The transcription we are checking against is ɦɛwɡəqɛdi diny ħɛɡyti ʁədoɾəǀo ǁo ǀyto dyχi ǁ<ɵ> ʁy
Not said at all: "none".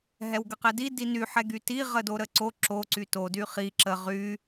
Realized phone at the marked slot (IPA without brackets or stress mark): ə